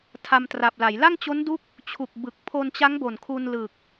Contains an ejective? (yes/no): no